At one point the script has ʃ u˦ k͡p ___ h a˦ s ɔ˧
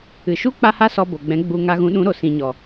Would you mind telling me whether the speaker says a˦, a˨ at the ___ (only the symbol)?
a˦